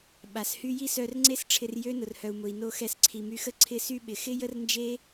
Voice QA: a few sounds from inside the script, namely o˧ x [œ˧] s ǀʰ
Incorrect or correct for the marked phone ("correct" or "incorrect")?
incorrect